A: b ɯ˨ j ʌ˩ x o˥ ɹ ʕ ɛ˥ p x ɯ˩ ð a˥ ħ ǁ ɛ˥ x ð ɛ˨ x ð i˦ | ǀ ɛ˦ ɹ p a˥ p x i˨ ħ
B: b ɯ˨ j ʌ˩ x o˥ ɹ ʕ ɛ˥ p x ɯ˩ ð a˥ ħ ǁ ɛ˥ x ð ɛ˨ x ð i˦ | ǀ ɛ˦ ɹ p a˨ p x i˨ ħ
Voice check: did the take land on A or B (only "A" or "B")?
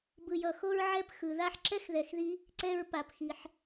B